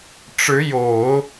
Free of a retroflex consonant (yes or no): no